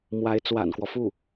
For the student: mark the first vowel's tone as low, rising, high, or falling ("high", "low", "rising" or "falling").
rising